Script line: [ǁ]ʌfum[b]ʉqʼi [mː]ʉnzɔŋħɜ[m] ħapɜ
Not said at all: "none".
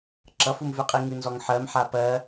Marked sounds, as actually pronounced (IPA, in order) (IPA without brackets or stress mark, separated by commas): ǁ, v, ŋ, m